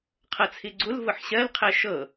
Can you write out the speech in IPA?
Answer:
qʰɤt͡sʰiɡ͡ǀul vʊħɕɜl qʰɛʃɤ

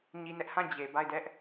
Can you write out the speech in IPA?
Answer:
ɲi˦nɛ˦ʔ hã˦˨d͡ʑe˨ ba˦˨ɪ̯dɛ˦ʔ

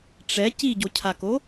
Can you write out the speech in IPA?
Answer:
ʈ͡ʂɛ ciɟocʰako

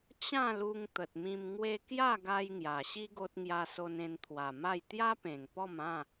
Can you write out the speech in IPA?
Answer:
t͡ɕã˥˧lu˧ŋ t̪ə˨t̚mĩ˧mŋwe˦ kja˥˧ɡa˧j ŋja˨˩ɕi˦ ɡo˦t̚ ŋja˦so˦n ẽ˧nt̪ʰwa˨˩ma˥˧j t̪ja˦pẽ˨˩ŋpɔ˥˧mã˥˧

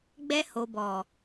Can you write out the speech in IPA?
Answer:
ɡ͡bɛ˧ ho˨bɔ˨

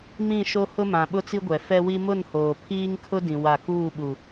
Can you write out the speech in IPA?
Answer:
mĩ˦˨ʃo˦ hʊ˦mã˨ ɓʊ˦t͡si˦ɡʷɛ˨ fɛ˦wi˦ mʊ˦˨nhoː˨ pʰiː˦ŋkʰʊ˦dĩ˨ wa˦˨ kuː˦˨ɓu˨

